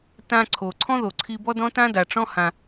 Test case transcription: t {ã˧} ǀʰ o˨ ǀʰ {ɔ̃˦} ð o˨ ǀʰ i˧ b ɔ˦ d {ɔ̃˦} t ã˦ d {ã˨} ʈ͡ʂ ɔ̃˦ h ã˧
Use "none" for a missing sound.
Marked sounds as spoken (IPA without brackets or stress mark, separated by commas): ã˧, ɔ̃˦, ɔ̃˦, a˨